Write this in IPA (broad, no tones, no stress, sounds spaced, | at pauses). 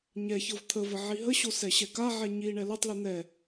ɲ ɛ ç ɤ v t̪ʰ ə v ə ʕ i ɦ ə ɕ o s ɛ ɕ ɛ k a ʕ ɛ ɲ i ɳ ɛ l o tˤ l i n̪ ɛ